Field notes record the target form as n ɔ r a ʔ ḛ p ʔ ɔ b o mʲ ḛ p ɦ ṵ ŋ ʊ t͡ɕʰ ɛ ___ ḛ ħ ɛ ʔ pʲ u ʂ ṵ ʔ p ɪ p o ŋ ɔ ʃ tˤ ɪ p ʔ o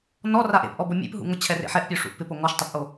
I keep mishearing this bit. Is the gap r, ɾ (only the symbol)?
r